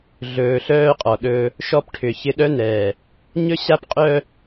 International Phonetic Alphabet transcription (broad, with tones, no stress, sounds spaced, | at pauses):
ɮ ɵː˨ ɬ œː˦ qʼ ɔ˨ ɗ ɵː˦ | ʃ ɔ˦ p ʈʰ ʏ˨ ç ɪ˦ ɗ œ˦ n ɛː˨ | ɲ ɵ˦ ɕ a˦ p qʼ œ˦